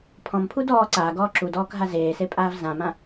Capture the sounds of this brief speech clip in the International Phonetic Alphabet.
pʰ ɔ̃ m pʰ u d ɔː ǀ aː ɡ ɔː ǁ u d ɔː k ɦ a z eː s e pʼ aː v z ã m ã

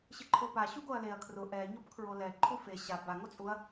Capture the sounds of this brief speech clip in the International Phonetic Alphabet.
ɕ ɪ ǃʰ o p a ɕ u ɡ o ɐ̯ l e ɐ̯ kʰ r ʊ ʔ ɛ ɲ o p kʰ ɹ o l ɛ ǃʰ u f e ɕ a b a ŋ o t͡sʼ u ɐ̯

